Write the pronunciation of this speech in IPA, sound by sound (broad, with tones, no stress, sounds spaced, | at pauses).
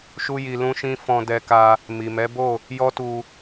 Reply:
ʃ u˦ j i˧ l ũ˦ ʃ ĩ˦ f ɔ̃˧ d ɛ˧ k a˧ | m i˨ m ɛ˨˦ b o˦˨ | j ɔ˦ t u˧